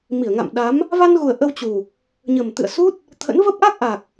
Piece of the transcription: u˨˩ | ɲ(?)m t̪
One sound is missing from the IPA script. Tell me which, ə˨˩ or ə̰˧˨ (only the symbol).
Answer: ə˨˩